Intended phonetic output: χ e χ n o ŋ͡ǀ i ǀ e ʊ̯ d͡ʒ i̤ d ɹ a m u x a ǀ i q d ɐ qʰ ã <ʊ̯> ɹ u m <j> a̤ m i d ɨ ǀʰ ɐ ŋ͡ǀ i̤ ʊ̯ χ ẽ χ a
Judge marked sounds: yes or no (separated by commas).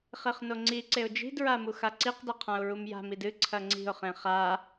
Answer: yes, yes